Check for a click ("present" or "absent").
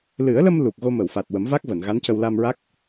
absent